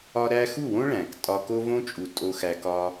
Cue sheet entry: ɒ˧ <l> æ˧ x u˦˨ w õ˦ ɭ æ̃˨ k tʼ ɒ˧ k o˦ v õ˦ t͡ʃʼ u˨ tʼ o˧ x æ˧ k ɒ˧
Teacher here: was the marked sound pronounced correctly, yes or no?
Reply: no